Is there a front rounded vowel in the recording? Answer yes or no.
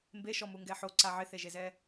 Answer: no